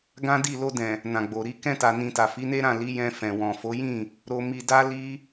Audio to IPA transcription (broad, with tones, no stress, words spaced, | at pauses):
ɡã˦di˦˨ lo˧dɛ̃˨ | nã˨ɡ͡bo˨ ɾi˧ kɛ̃˧ta˨nĩ˨ ta˨fi˨˦ne˦ɾã˦˨ li˨˦ jɛ̃˧ fɛ̃˨wɔ̃˨fo˨˦jĩ˦˨ | ɾo˧mi˧da˦ li˦